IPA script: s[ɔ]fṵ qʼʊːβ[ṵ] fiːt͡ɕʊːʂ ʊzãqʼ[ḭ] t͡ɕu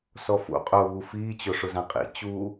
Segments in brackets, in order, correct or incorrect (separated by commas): correct, incorrect, correct